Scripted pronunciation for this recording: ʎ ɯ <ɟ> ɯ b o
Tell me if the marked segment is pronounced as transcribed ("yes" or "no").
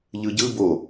yes